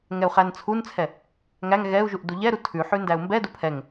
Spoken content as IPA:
ŋ ɛ u̯ χ æ n t͡sʰ u n t͡sʰ ɛ | ŋ æ ŋ ɣ ɛ u̯ ʒ u ʔ d u ʎ ɛ ɾ u tʰ ʉ ħ ʉ n d æ u̯ m b ɛ d u pʰ ɛ ŋ

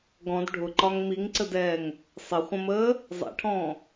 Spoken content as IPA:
ɡ ɔ̃ d ɖʱ ʊ ǃ ɒ ŋ m i ŋ ǀ ə d ɛː ŋ | sˤ ɪ χʷ ə̃ m əː | zˤ ɛ̰ ʈʰ ɔ̃ː

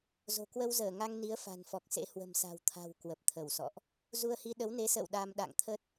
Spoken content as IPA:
z o̤˨˩ k w ə˧ w z əː˧˩ ŋ a˧ ŋ n i˨˦ ə̯ f a̤˨˩ n f ɔ˨˩ k̚ s ḛ˧˥ h w ə̤˨˩ m s a̤˨˩ w t̪ʰ a̤˨˩ w k w ə˨˩ p̚ t̪ʰ ə˧˩ w s ɔ̰˧˨ ʔ | z u˧ ə̯ h i˧ ɗ ə˨˦ w n e˨˦ s ə̰ː˧˨ w ɗ a˧ m ɗ a̰˧˨ ŋ t̪ʰ ə˦˥ t̚

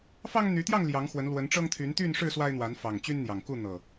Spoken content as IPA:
f ɑ˦ ŋ n̪ y˨˦ t̪ j ɑ˥˨ ŋ l j ɑ˨˦ ŋ x w ə˨˦ n l w ə˨˦ n ʈ͡ʂ ɤ˦ ŋ t̪ʰ y˨˦ n t̪ y˥˨ n ʂ ɻ̩˥˨ s w a˦ ɪ̯ n̪ w a˨˦ n f ɑ˨˩ ŋ t͡ɕ y˦ n n̪ j ɑ˨˩ ŋ k u˥˨ n̪ ɤ˨˩

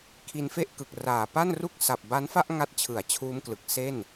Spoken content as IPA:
kʰ i˧ n f e˥˩ ʔ k ɯ˨˩ k̚ r aː˨˩ p a˥˩ n r u˥˩ k̚ s a˨˩ p̚ b a˦˥ n f a˥˩ ʔ ŋ a˦˥ t̚ t͡ɕʰ ɯ˩˦ a̯ t͡ɕʰ uː˦˥ m k l ɯ˨˩ k̚ s e˥˩ n

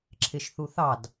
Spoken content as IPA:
ǁʰ ɪ ʃ θ u θ ɑ d

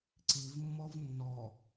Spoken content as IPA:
ǀ i v mː ɔ v nː ɔ

